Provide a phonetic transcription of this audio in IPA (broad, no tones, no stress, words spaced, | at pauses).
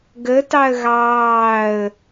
ɡə tɑə̯ɣɑːə̯